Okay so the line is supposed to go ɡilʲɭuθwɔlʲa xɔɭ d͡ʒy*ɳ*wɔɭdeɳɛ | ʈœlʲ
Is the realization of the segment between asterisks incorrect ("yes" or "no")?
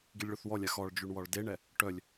no